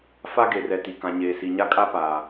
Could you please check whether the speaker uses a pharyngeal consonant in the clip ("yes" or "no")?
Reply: no